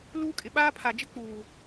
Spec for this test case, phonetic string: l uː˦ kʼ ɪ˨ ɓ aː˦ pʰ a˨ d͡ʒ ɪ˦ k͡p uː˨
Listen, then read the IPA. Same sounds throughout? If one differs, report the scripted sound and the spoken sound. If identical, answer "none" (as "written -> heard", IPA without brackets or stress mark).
none